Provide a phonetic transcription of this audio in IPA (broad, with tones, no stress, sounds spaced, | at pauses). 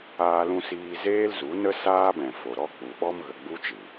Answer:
aː˦ l ũ˦ s iː˦ z eː˦ l z u˨˦ n ə˦ s aː˦ b ɛ̃˨ f o˨ ɾ ɔ˦ k͡p u˨ ɓ ɔ˦ m ɣ ə˨ ɡ͡b u˦ t͡ʃ ɨ˨